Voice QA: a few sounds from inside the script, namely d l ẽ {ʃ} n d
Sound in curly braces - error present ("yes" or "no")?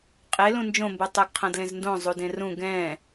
yes